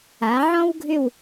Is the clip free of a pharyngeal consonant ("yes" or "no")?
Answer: no